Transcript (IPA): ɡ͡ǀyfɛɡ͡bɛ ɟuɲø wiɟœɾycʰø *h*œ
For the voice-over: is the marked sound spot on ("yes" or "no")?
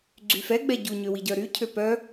no